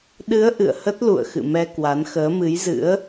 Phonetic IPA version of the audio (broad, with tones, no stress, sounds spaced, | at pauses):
ɗ ɨ˨˦ ə̯ ʔ ɨ̰˧˨ ə̯ h ə˦˥ t̚ l ṵ˧˨ ə̯ x ɨ̰˧˨ m ɛ˧ k w a˨˦ n x əː˨˦ m ɨ˨˦ j z ɨ̰˧˥ ə̯